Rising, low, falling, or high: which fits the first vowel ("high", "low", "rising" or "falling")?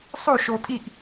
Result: falling